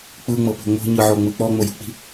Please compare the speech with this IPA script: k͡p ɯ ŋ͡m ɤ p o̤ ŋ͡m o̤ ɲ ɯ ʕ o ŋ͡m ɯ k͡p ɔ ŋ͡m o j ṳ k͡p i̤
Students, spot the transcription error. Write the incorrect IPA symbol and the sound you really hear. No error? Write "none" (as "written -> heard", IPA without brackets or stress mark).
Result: none